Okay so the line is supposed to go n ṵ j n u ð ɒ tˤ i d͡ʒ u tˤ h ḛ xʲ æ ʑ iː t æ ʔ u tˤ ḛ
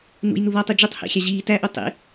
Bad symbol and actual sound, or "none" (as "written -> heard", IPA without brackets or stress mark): none